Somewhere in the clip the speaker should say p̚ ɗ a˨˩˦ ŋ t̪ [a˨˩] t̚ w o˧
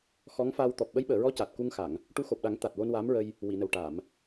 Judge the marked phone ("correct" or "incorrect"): correct